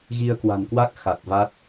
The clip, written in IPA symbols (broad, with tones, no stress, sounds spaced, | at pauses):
ɣ i˧ ə̯ k w a̤˨˩ n k w a˦˥ k̚ x a˨˩ t̚ v a˦˥ t̚